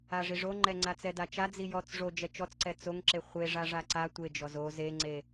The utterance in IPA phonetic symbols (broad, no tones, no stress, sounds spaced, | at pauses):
a ʐ i ʐ o ŋ͡ǃ ɛ ŋ͡ǀ a t͡s ɛ d a t͡ʃ a d͡z i j ɔ t͡s ʐ o d͡ʒ ɛ t͡ʃ ɔ t͡s ǀ ɛ t͡s o ŋ ǁ e χʷ e ʐ a ʐ a ǀ a tʷ e d͡ʒ ɔ z o z e ŋ͡ǀ e